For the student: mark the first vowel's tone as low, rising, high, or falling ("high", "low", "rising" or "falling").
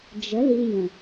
rising